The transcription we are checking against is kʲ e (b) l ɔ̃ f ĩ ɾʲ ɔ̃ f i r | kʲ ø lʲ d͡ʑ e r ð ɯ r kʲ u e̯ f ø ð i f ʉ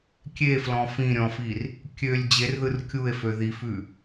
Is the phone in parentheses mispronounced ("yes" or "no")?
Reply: yes